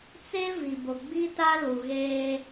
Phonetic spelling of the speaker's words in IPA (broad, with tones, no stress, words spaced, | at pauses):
t͡se˦vi˨ bʊ˨ɡ͡bi˦ta˦ lu˨ɣeː˦